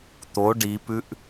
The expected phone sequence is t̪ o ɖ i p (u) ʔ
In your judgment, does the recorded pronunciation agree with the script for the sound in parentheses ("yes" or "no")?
no